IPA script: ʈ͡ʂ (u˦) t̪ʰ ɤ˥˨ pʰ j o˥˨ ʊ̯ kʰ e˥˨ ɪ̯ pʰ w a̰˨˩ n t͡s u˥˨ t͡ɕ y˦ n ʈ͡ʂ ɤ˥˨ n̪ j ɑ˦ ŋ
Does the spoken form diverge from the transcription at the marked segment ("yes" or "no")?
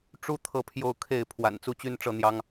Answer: yes